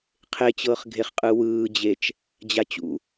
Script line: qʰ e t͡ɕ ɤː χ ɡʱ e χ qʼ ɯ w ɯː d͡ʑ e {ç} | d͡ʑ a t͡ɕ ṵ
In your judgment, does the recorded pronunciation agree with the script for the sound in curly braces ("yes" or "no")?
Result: no